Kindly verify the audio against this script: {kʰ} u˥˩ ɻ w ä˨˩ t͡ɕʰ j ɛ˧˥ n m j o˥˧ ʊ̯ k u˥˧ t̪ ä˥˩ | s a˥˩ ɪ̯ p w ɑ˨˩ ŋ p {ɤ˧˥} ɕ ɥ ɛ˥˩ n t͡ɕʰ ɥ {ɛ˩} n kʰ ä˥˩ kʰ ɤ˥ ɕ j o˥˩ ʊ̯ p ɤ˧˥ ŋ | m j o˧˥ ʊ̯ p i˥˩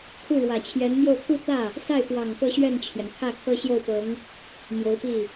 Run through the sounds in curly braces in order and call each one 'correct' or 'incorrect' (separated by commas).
correct, incorrect, correct